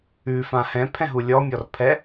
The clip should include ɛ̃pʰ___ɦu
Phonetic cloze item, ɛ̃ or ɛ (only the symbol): ɛ̃